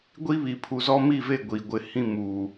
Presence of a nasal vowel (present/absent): present